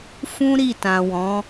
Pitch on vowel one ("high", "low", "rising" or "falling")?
high